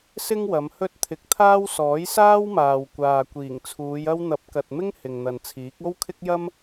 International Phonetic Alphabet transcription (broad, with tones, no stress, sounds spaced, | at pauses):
s ɪ˥ ŋ w ɐ˨˧ m h ɵ˥ t̚ t̪ʰ ɪ˧ k̚ t̪ʰ aː˥ w s ɔː˨˥ j s aː˥ w m aː˨ w kʷ aː˨ kʷ iː˨˩ ŋ t͡sʰ uː˨˧ j ɐ˧ w n̪ ɐ˨˥ p̚ k ɐ˨ t̚ m ɪ˥ ŋ h ɪ˨ ŋ n̪ ɐ˨ n t͡sʰ iː˨˥ k̚ o˥ w kʰ ɪ˥ k̚ j ɐ˥ m